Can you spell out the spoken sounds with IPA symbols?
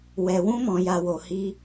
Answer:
w ɛ˨ w ũ˧ m ɔ̃˨ j a˨ w o˨ h i˧

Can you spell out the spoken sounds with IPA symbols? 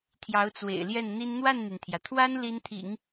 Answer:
t̪ʰ j ɑ˧˥ ʊ̯ t͡s w ḛ˨˩ ɪ̯ l j ɛ˥˩ n n̪ i˥ n n̪ w a˥˩ n n̪ y˩ n t̪ʰ j ä˩ t̪ʰ w a˥ n l i˥ n t̪ʰ ḭ˨˩˦ ŋ

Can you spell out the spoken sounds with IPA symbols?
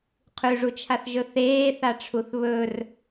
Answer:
qʰ ʉ ʐ u t͡ʃʰ a θ ʒ ɵ θ eː θ a ʈ͡ʂʰ u θ β ɵ r

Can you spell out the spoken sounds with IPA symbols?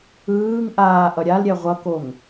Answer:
ɯː ŋ ʔ aː ʔ ʌ ɾʲ a l ɾʲ ɛ ʁʷ ʌ k o ŋ

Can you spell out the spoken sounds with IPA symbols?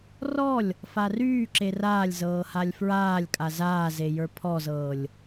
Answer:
r ɔ lʲ | f a r yː ǁ e r aː lʲ z ɤː h a lʲ f ɹ aː lʲ kʼ a z aː z e j ə˞ pʰ ɔ z ɤː lʲ

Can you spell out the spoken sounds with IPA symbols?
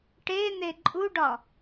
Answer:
ʈ e n̪ e ǃʼ u ɖ ɒ

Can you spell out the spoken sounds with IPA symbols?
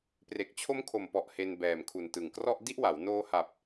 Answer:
p r e˨˩ k̚ t͡ɕʰ o˦˥ m kʰ o˨˩ m p ɔ˨˩ ʔ h e˧ n b ɛː˨˩ m kʰ u˨˩ n t ɯ˨˩ ŋ k r ɔ˥˩ ʔ d i˥˩ ʔ w a˩˦ w n oː˧ h a˨˩ p̚

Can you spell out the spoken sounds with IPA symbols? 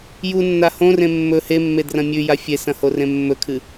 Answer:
j u nː a h õ r ẽ mː ɵ h e mː e d r ɐ̃ mʲ ʉ j a fʲ e s ɐ̃ h o r ẽ mː ɵ kʰ ɨ

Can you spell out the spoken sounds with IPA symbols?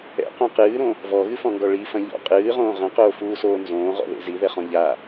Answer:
ɛ̰ q õ q ɨː ɾ õ | v ɔ ɣ ɨ f ɔ̃ ŋ ɡ ɔ ɭ i f ɐ̃ ʎ ɔ̰ qʼ ɨː ʁ õː ʁ ɐ̃ q oː f uː s oː n z õː ʁ ɔ̰ ð ḛ z i ð ɛ χ ɔ̃ ʎ a

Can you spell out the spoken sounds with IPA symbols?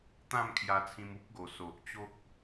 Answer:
t̪ ã˥˧ m kʰ j a˧ t͡sʰ ĩ˧ m u˦ p̚ ɡ o˨˩ s o˨ ʔ t͡ɕ o˦ k̚

